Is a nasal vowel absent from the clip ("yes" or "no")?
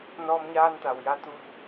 yes